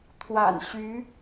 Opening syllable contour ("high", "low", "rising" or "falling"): low